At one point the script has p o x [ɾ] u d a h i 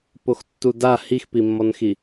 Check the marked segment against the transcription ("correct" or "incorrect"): incorrect